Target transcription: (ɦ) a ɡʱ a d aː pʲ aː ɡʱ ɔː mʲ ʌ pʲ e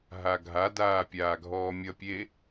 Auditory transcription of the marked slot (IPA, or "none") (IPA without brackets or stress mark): ɦ